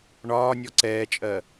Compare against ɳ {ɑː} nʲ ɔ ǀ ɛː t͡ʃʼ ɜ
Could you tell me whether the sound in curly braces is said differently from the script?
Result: yes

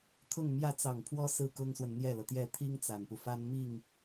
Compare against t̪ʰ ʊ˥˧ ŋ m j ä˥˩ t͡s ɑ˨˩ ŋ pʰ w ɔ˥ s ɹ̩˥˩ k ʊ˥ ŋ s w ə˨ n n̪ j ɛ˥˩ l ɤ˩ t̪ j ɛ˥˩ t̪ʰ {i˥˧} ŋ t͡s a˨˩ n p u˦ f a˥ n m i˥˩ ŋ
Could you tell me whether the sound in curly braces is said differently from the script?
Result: yes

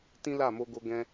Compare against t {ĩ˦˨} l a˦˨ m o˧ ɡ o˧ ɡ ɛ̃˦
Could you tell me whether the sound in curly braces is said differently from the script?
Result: yes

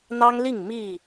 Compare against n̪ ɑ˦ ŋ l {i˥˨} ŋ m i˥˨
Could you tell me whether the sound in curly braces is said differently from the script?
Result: no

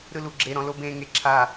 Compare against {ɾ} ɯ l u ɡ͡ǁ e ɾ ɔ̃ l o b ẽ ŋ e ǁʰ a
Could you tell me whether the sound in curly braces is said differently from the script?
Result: no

